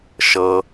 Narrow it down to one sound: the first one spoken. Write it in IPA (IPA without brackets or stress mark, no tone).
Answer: ʃ